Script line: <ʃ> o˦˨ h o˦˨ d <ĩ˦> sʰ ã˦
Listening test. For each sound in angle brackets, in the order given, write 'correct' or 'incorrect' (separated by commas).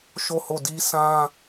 correct, incorrect